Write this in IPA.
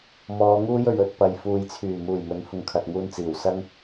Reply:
mɔː˨˧ŋuː˥j ɵ˨ɥɵ˧t̚ pɐ˧j fuː˨jt͡sʰyː˨˩ muː˨˩jmɵ˨˥nhʊ˨ŋ kʰɐ˨t̚ŋuː˧nt͡siː˨˩w sɐ˥ŋ

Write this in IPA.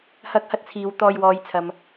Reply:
hɐ˥k̚ hɐ˥t̚t͡sʰiː˨˧w t̪ɔː˧jwɔː˨˧jt͡sʰɐ˨m

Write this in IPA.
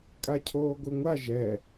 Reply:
kʼacʰoːɡʷɯŋʷa ʒɛ

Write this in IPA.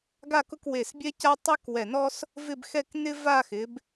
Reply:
ɡa˥˧kʊ˥˧kwe˧˩s bʲɛ˥ca˥ tˤɛ˥k wɛ˧˩nɔ˥s | vɪ˥˧bxɛ˥˧k nɪ˥va˥˧ xɪ˩˧b

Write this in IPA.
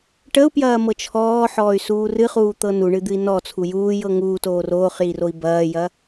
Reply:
ʈəu̯pjɐːmɤ t͡ʃʰɔːħɔːy̯ suːrɨχuːt̪ɤ nuɳɨd̪ɨi̯ nɔ t͡sʰujuː jɤŋuː toːroːχjiroi̯ bɐːjɐ

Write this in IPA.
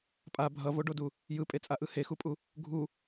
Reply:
pʼa bʱʌvoɖodu | jɯpʼet͡sʼaʔɯ hexupʼu | ɡʱu

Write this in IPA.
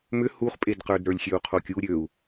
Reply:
mʏ huχpʼedqə˞d ɾə˞lʲxʲøu̯qʰokʲu ɾʲøu̯

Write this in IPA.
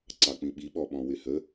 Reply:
ǀɑk͡pĩɓi ɓɔɓɔ̃wɪhə

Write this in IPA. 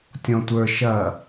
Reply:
tʲɔ̃tʷə˞ ʃɐ

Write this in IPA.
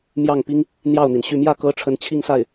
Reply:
mjɑ˥˩ŋpi˥ŋ | n̪jɑ˥˩ʊ̯n̪i˩nɕy˥˧ mjä˥˩kɤ˧˥ ʈ͡ʂʰə˧˥nt͡ɕʰi˥˧ŋsa˥˩ɪ̯

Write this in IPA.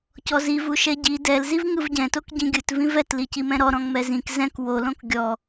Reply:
cɔzivu ʃɛɟi dɛlziv ŋɯvɟɛ̃tok ɟĩɡʲɯtvĩv ɛtli cimɛ̃ɾɔ ɾɔ̃ŋmɛzĩk zɛ̃k wolõk ɡʲɔ

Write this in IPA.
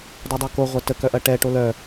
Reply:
dˤodˤɑko ʁʷɐtə kœʔɐʈɛ ʈolœ

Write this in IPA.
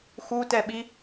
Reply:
xutɛɓi

